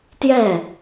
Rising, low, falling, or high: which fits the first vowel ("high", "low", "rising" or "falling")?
falling